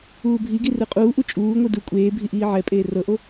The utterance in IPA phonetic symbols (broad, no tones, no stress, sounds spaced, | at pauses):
uː bʱ i ɡ i r ɯ qʼ uː ʔ u t͡ʃʼ uː ŋʷ ɯ d u kʷʼ eː bʱ i ʔ iː ʕ ɛ pʼ eː r ɤ ʔ o